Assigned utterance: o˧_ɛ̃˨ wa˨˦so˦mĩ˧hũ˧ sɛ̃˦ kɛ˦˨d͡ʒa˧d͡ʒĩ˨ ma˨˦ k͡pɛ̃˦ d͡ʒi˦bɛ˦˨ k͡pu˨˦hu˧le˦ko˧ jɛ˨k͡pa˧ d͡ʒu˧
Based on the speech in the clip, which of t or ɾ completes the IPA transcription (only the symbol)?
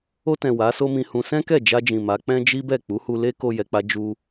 t